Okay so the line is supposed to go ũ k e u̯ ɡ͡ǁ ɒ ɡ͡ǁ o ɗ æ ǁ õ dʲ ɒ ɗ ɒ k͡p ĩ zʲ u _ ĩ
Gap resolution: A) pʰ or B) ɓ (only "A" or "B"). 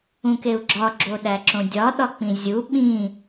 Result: B